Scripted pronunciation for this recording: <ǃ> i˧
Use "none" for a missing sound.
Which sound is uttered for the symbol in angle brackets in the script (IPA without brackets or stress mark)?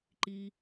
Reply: ǃ